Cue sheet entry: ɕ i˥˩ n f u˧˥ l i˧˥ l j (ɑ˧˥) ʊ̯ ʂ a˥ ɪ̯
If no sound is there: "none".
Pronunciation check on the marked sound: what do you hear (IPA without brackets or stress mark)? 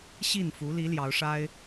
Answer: ɑ˧˥